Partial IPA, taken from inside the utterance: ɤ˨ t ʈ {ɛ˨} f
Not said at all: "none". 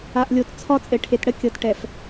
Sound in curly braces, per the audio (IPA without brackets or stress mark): ɛ˨